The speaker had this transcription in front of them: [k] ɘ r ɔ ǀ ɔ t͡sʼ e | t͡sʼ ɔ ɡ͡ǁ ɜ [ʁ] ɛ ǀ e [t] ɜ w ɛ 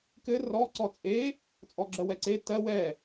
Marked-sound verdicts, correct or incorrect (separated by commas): correct, incorrect, correct